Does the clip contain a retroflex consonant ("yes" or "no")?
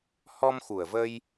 no